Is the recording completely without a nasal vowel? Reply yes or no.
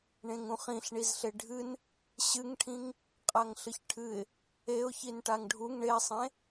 no